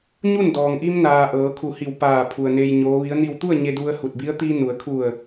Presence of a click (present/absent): absent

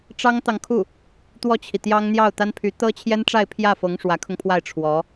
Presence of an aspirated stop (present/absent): present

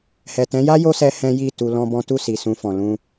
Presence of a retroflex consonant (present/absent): absent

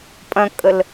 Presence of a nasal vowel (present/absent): present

